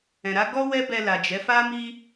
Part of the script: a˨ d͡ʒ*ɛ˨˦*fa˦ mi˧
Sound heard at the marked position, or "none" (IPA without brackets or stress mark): ɛ˨˦